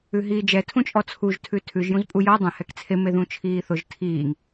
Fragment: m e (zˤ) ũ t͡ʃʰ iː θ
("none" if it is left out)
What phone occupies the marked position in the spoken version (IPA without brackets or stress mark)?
ð